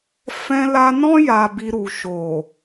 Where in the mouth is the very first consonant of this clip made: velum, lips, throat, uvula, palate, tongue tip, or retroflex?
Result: lips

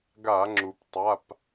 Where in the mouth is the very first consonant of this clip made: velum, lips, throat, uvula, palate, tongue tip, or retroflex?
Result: velum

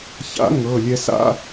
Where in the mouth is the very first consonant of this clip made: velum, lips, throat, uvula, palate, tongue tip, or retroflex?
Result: palate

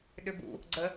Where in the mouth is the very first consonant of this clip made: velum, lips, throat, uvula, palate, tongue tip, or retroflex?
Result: tongue tip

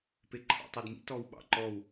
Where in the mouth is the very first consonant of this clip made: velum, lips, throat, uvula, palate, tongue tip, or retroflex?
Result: lips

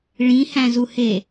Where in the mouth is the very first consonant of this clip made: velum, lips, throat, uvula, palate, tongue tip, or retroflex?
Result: retroflex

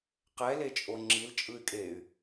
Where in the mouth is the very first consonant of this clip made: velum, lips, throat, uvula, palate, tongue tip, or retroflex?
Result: uvula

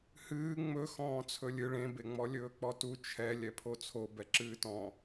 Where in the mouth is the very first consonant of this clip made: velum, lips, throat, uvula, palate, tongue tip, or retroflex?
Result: throat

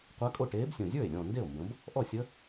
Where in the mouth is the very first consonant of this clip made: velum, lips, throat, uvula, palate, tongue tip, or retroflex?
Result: uvula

